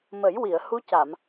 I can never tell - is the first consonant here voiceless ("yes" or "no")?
no